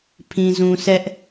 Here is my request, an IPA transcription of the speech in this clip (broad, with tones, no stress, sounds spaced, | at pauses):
pʰ ĩ˨ z ũ˨ sʰ ɛ˦ ʔ